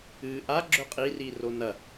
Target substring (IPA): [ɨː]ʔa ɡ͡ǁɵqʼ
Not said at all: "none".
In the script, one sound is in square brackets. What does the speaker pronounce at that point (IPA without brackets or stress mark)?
ɨː